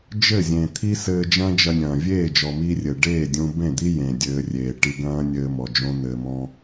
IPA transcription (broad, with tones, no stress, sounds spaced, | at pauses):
d͡ʒ ɘ˦˨ zʲ ẽ˨ t̪ʰ i˦ s ɘː˧ d͡ʒ ɐ̃ː˦ d͡ʒ ɐ˧ nʲ ɐ̃ː˨ vʲ eː˦˨ d͡ʒ ɔ˨ m iː˧ rʲ ɘ˨ ɖ eː˦˨ dʲ ũ˧ b ẽ˦˨ d̪ i˦ j ẽ˨ dʲ ɘː˧ rʲ eː˨ ʈ i˧ ɡ ɐ̃ː˦ nʲ ɘː˧ m ɔ˨ d͡ʒ õ˦ n̪ ɘː˧ m ɔ̃˦